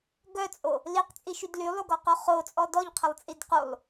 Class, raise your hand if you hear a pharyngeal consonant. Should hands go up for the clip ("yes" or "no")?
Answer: no